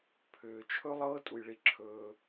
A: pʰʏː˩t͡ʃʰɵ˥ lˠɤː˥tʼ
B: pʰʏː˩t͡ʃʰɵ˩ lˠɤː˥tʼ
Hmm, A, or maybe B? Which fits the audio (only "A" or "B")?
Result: A